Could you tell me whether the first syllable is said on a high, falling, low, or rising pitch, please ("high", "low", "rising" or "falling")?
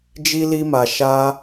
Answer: high